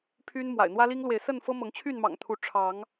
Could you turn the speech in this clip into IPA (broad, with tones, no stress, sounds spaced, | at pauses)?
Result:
pʰ y˦ n m w a̰˨˩ ɪ̯ n̪ w ä˦ l i˦ ŋ l w e˨ ɪ̯ s ə˥˨ n f ɤ˦ m ɤ˨˦ ŋ t͡ɕʰ y˥˨ n m ɑ̰˨˩ ŋ t̪ʰ u˨˦ ʈ͡ʂʰ ɑ˨˦ ŋ